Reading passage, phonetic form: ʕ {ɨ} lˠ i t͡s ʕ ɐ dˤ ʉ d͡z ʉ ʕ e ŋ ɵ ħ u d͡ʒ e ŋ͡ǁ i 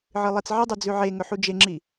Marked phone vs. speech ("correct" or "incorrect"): correct